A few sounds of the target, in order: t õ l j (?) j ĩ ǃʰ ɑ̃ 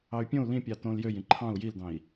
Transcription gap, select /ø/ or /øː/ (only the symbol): ø